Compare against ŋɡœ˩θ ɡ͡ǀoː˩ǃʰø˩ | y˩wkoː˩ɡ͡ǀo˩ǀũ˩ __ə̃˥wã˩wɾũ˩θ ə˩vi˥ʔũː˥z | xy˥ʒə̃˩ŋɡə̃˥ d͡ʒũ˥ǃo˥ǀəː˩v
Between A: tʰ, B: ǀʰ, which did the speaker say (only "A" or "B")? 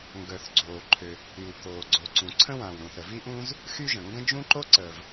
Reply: B